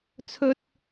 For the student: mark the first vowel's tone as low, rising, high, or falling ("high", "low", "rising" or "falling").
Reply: high